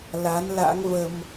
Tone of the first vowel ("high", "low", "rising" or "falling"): rising